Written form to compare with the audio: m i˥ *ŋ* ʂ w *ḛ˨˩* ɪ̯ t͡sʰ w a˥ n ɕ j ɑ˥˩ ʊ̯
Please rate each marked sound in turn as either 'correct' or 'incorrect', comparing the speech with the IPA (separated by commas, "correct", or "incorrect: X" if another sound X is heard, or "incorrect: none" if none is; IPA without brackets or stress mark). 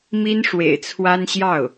incorrect: n, correct